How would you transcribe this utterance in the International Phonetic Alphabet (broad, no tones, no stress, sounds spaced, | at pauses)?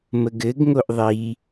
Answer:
m ə ɡ ɘ ɡ ŋ o ʔ ðˤ i